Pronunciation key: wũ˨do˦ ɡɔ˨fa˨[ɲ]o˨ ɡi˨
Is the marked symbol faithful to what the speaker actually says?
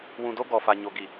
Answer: yes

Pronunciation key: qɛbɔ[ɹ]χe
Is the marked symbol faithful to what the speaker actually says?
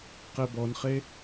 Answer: no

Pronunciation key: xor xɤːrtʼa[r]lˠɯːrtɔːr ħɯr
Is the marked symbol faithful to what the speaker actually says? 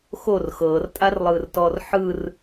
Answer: yes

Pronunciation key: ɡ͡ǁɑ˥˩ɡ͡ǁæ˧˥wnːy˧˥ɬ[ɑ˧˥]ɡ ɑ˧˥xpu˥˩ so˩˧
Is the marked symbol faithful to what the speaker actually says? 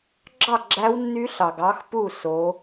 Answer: no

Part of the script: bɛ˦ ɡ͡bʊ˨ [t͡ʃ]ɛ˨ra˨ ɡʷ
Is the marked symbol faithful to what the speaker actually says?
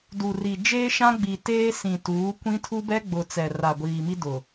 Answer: no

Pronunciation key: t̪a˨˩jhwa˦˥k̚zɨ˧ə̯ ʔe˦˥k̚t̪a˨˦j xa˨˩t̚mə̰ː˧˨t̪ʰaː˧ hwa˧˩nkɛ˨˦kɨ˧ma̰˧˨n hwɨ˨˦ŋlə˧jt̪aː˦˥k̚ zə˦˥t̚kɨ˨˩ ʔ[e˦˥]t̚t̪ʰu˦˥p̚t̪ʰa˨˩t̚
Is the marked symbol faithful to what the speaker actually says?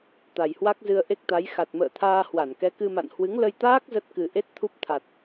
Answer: yes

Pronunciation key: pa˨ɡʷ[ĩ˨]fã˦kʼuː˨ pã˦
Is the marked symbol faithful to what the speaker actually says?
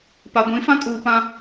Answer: no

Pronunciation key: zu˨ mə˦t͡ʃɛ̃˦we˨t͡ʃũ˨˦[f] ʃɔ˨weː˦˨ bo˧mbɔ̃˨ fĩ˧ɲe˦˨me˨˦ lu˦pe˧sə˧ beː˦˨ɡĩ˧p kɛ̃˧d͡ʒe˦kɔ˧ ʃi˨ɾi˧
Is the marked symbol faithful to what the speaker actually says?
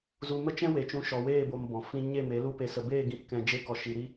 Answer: no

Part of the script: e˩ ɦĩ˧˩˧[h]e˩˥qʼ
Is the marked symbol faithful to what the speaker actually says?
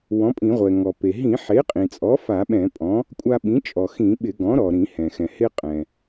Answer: no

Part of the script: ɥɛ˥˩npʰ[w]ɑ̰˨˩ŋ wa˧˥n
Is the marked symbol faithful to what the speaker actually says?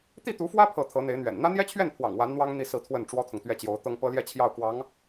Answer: yes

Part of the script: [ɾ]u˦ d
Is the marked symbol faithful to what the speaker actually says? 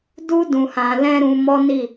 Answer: no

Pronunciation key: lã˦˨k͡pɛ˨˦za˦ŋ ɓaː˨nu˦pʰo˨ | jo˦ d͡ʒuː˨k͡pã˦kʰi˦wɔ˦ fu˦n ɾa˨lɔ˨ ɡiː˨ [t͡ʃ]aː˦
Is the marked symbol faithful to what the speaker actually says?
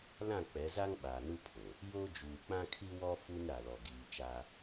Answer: yes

